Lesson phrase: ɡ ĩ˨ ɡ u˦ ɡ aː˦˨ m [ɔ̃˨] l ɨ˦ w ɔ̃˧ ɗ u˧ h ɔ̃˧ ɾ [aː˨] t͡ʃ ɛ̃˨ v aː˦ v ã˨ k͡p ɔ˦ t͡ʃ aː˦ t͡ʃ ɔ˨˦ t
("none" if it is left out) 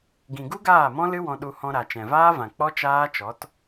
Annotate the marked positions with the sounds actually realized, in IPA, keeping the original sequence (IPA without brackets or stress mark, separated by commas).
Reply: ɔ̃˦, a˨